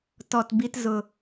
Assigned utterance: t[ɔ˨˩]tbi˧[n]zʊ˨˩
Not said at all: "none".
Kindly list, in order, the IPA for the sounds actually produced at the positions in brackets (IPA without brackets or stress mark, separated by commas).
ɔ˨˩, t